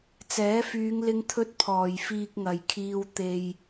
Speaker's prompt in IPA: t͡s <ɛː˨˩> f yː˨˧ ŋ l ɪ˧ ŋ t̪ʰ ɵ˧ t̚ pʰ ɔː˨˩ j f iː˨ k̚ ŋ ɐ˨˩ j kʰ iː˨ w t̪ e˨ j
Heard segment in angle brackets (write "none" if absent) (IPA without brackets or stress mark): ɛː˨˥